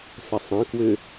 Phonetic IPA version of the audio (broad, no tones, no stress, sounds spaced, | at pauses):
s ə sˤ ə̃ k w ʏ